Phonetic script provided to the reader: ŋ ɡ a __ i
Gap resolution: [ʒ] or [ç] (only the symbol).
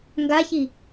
ç